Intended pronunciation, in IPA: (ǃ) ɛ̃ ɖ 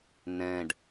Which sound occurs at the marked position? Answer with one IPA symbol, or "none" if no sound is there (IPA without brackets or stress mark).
n